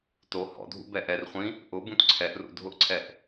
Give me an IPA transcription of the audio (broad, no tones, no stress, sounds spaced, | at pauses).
t o h ɔ̰ dʱ ṵ b ɛ ʔ ɛ r χʷ ĩ | ʔ ʊ b ũ t ǀʰ ɛ ʔ r ṵ dʱ ʊ ʔ ǀʰ ɛ ʔ